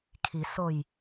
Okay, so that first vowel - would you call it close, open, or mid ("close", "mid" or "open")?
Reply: close